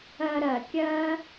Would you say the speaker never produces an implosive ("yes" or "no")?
yes